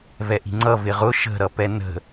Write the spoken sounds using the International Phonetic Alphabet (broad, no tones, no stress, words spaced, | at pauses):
vɛʔi̤ŋ͡ǀʌ vɪʁʊ ʃə̤ ɾʌpɛnə̤